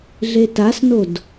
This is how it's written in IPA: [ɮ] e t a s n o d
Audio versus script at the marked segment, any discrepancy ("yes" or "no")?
no